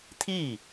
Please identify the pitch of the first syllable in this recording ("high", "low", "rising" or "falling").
falling